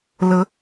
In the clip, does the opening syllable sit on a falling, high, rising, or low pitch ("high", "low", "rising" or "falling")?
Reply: rising